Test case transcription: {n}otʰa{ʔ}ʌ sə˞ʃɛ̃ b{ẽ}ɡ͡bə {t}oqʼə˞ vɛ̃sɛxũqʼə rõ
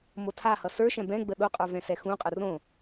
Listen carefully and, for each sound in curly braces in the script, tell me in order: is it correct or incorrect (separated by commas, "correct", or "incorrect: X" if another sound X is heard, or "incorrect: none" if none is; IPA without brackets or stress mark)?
incorrect: m, incorrect: h, incorrect: ɛ̃, incorrect: ɗ